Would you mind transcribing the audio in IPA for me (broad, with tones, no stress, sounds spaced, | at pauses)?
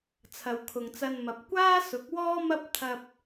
t͡sʰ ɐ˨ w kʰ ʊ˨ ŋ t͡s ɐ˧ n m ɐ˨˥ p̚ kʷ aː˥ s ʊ˨˥ k̚ w ɔː˥ m ɐ˥ p̚ t̪ʰ ɐ˧ p̚